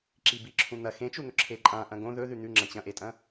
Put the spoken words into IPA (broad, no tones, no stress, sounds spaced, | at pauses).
ǁ i b i ǁʰ ũ n̪ ɐ x ẽ t͡ʃ u n̪ ɵ ǁʰ e ǃʼ ã ʔ ɐ̃ ɡ õ ð ɵ ð ʉ n̪ ʉ ŋ͡ǁ ɐ̃ t͡ɕ ɐ̃ ʔ e tʼ ɐ̃